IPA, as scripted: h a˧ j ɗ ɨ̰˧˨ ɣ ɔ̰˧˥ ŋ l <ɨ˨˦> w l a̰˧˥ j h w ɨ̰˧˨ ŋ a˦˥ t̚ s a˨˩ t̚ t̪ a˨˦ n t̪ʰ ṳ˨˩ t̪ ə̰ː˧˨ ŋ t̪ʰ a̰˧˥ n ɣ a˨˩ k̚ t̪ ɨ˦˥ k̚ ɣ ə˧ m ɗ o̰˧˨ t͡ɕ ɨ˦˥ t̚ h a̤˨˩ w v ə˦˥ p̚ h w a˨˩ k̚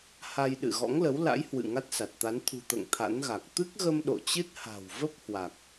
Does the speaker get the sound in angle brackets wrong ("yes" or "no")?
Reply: yes